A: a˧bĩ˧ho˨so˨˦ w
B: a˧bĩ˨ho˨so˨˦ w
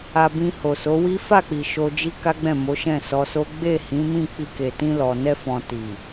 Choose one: A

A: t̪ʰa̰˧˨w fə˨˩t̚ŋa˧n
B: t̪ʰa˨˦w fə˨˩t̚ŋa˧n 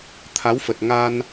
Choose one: B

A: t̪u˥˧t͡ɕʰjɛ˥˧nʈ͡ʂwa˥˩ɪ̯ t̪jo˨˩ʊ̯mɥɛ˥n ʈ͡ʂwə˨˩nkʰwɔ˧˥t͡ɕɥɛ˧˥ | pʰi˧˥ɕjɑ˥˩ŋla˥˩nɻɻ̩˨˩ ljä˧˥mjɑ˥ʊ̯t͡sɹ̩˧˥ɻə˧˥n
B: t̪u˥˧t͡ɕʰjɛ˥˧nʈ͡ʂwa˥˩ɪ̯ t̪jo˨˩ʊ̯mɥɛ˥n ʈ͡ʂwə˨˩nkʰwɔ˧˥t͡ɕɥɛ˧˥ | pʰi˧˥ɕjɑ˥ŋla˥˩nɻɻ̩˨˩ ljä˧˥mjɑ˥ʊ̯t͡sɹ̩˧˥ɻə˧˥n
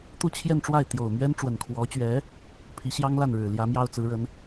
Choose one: B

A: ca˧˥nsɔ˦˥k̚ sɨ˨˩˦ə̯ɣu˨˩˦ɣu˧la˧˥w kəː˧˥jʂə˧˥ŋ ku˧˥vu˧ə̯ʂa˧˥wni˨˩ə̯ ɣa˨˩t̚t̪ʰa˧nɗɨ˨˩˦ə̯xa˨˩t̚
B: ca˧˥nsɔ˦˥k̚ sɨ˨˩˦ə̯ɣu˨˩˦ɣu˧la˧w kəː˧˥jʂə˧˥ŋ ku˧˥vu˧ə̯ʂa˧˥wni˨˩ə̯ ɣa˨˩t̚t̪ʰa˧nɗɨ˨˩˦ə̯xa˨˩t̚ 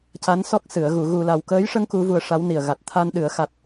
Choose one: B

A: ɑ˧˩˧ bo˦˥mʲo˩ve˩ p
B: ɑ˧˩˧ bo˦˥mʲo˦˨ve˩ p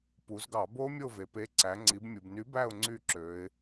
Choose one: B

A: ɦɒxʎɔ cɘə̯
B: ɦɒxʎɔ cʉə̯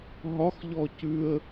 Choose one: B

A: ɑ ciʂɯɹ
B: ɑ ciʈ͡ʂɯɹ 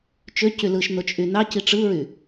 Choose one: B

